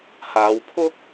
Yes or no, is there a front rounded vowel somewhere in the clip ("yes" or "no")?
no